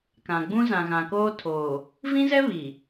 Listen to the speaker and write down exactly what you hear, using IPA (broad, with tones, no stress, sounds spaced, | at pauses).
k ã˨ ɡ͡b ũ˦ z ã˨ ɣ ã˨ k oː˦ tʰ oː˨ | v ĩ˦ z ɛ˦ β iː˨